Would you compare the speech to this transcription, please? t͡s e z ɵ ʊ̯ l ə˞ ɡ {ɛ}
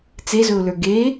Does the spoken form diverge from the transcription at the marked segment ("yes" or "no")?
yes